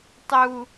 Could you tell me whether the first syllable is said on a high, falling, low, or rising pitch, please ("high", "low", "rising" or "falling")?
high